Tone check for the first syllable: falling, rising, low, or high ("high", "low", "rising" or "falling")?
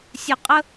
low